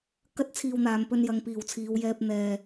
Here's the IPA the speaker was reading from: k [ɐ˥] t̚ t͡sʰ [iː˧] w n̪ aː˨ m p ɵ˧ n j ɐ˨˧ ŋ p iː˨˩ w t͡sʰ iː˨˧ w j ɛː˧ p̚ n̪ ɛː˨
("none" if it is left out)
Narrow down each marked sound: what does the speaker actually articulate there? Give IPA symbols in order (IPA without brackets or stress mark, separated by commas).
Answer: ɐ˥, iː˧